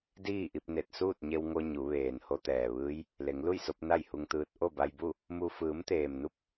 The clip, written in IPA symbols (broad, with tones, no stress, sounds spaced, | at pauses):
d iː˥˨ ʔ i˧ p̚ n e˧˩ t̚ s uː˥˨ t̚ ɲ e˧ w ŋ o˧ ɲ u˩˧ ʋ eː˩ n h o˧ t̪ ɛː˩ ʋ ɯː˧˥ j | l e˩˧ ŋ l u˥˨ j s o˧ p̚ n a˥˨ j h u˧ ŋ t̪ ɯː˧ t̚ ʔ o˥˨ b a˧ j b u˥˨ | m u˧ f ɯː˩˧ m t̪ eː˩ m n u˧ p̚